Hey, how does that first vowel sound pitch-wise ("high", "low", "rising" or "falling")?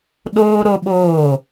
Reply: high